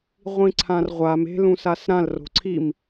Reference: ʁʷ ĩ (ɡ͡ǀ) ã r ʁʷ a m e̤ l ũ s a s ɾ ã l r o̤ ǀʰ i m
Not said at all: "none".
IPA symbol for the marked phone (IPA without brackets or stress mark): ǀʰ